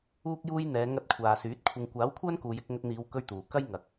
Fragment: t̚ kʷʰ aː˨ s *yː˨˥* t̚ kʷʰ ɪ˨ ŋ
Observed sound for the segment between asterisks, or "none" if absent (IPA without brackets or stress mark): yː˨˥